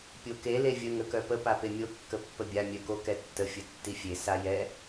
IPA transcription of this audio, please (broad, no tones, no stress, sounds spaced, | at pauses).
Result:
pʲ o k e l e vʲ ə ŋ ə k œ p ə p a p e mʲ o kː ə pː ə bʲ a mʲ œ k o k ɛ tː ə fʲ ə tː i fʲ e s a j ɛ